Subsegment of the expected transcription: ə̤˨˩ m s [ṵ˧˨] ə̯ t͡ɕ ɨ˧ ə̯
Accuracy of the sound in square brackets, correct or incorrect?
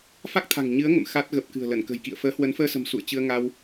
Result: correct